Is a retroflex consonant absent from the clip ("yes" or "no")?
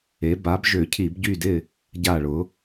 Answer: no